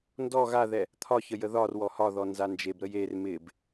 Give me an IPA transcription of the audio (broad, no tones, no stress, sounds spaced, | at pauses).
n d ɔ ɣ a ð ɛ | t̪ʰ ɒ ç ə j ə ð ɒ r w ɔ h ɒ ð ɔ n z a n d͡ʒ e b ɾ ə j e r m ɪ b